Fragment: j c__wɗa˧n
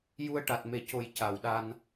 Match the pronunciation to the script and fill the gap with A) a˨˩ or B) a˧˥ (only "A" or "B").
A